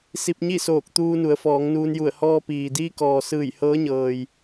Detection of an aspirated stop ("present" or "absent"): absent